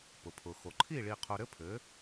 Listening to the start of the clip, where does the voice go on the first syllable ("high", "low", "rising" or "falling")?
low